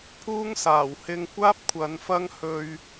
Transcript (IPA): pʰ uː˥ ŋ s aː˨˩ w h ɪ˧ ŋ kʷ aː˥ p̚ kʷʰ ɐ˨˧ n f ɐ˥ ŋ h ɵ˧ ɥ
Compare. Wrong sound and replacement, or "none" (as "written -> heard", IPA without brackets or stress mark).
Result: none